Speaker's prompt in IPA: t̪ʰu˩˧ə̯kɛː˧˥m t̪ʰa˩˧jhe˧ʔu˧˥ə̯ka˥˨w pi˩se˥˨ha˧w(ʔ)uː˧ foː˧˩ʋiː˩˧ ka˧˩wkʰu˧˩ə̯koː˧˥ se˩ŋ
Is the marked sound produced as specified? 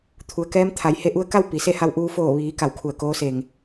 yes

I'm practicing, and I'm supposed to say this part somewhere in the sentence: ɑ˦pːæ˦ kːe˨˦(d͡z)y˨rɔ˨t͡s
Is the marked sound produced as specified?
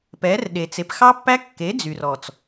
yes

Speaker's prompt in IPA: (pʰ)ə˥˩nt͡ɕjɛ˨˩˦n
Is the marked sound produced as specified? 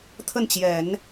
no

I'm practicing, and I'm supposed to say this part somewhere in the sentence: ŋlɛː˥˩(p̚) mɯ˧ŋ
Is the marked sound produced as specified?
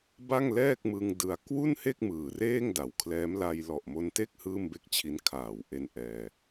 no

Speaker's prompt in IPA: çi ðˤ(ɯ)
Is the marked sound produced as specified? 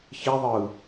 yes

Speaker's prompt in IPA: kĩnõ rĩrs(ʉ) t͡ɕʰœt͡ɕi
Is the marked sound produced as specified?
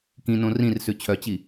yes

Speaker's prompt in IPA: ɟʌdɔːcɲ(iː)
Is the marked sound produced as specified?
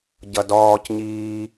yes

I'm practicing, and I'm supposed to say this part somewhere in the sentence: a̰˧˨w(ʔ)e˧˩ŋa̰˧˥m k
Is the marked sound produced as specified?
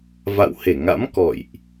no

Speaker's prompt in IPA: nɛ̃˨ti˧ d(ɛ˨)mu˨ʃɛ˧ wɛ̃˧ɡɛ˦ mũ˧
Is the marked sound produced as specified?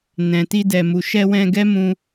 yes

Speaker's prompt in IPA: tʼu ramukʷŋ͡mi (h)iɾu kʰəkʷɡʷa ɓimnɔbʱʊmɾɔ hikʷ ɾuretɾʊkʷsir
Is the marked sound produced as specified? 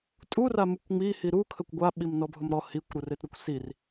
yes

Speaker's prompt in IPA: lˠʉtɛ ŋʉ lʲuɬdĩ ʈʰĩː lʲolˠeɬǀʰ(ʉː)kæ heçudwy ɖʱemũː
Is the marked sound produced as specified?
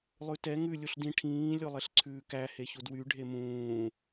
yes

